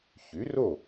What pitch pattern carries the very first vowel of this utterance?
rising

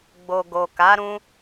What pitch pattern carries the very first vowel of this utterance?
low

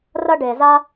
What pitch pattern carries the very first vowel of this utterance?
high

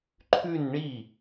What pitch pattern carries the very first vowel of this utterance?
falling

